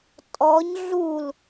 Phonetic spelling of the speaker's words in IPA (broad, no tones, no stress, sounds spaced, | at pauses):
tʼ ɔ ɲ ɮ u l